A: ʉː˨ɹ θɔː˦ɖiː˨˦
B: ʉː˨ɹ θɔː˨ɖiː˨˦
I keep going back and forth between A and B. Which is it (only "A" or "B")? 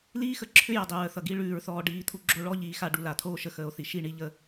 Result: B